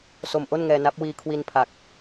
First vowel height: mid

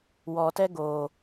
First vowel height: mid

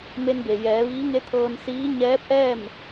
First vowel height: mid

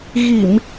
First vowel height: high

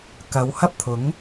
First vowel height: low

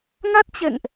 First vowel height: low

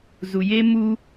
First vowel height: high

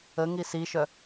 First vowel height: mid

